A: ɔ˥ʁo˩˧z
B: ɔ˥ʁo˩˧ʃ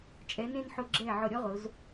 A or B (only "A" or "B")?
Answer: A